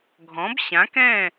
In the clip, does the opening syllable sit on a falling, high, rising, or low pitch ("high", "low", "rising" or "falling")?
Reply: rising